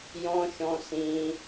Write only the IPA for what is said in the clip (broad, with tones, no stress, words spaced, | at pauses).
jɔ̃˧ʃɔ̃˧ sĩ˧